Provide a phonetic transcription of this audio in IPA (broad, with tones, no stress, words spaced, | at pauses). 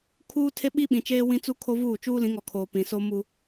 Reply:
kʰuː˦ tʰe˦ɓi˦ɓĩ˨t͡ʃeː˦ wĩ˦t͡su˦kʰo˦vuː˦˨ t͡ʃuː˦lĩ˨˦ŋɔ˨ kʰoː˨ pĩ˨ so˦ mu˦